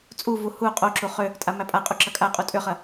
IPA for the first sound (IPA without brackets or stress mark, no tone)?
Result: t͡sʼ